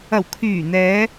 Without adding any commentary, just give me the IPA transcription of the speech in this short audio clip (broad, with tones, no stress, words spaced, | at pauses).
ɐ˨˩wkʰyː˨˩n̪ɛː˨˧